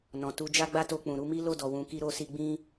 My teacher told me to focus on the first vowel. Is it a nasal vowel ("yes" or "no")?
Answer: yes